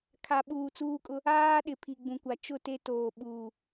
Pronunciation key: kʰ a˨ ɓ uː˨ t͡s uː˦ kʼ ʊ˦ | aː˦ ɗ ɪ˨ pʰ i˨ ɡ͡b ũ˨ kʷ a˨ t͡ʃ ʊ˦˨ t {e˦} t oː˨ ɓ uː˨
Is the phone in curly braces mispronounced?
no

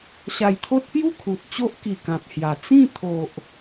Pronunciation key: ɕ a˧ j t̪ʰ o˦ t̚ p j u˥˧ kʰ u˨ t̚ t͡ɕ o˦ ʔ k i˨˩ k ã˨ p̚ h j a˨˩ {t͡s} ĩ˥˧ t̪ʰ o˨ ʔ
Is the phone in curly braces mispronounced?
no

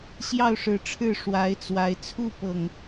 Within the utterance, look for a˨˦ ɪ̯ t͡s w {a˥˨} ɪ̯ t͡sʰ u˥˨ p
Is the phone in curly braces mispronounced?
yes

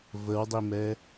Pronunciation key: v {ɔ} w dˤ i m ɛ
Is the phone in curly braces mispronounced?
yes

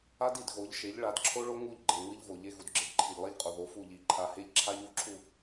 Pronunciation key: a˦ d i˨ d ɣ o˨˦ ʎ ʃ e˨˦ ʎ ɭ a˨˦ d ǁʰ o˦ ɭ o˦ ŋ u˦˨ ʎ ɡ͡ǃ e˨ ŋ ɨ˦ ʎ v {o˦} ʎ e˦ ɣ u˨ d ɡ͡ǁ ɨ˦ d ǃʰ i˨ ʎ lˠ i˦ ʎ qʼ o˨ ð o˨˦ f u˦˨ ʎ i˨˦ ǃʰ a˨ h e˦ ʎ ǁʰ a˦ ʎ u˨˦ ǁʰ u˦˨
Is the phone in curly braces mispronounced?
yes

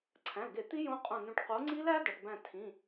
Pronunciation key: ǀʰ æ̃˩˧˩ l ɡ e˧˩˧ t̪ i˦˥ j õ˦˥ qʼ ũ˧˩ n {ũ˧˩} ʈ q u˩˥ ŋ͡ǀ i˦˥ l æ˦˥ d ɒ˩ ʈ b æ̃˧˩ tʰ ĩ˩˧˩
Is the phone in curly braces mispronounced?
no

